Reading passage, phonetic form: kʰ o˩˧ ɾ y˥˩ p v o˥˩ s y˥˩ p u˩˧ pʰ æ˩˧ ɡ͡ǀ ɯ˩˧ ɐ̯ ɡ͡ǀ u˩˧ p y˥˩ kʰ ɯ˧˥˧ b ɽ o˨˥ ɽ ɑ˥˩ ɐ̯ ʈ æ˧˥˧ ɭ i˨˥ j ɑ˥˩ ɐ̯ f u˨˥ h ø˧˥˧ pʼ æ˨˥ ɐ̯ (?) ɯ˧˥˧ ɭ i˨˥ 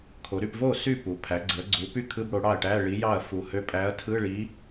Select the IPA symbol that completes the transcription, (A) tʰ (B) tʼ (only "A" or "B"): A